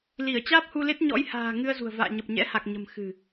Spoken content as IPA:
l i˧˩ ə̯ t͡ɕ aː˦˥ p̚ h u˧ l e˦˥ t̚ ɲ ɔ̰˧˥ j h a̤ː˨˩ ŋ ɨ˧ ə̯ z ṳ˨˩ ə̯ v a̰ː˧˨ ɲ ə˨˩ p̚ ɲ ɛ̰˧˥ h a˨˩ k̚ ɲ ə̤˨˩ m x ɨ̤˨˩

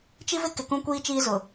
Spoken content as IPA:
t͡ʃ i˦ v ɪ˦ k ɪ˨ k ũ˦ kʷ iː˦ t͡ʃ iː˦ z ʊ˨

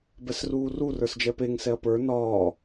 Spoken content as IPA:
b ɛ s r uː r u r ə˞ s d͡ʒ ɛ p e ŋ s ɛ ɐ̯ p ə˞ n ɒː

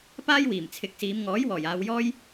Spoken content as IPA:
p aː˥ j w iː˨˩ m t͡sʰ ɪ˨˥ k̚ s iː˨˧ m ŋ ɔː˨˥ j w ɔː˨˩ j aː˨˧ w j ɔː˥ j

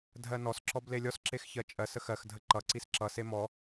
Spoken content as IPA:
dʱ ɜ n ɔ s ǁ ɔ b l e lʲ ɔ s ǁ e x ç ɜ t͡ʃʼ ɜ s ə x ɜ x dʱ ə ǃ ʌ ǀ i s ǁ ʌ s e m ɔ

